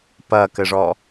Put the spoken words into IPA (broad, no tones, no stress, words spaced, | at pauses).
pɐkɘʐɔ